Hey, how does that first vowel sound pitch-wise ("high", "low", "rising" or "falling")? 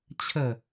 falling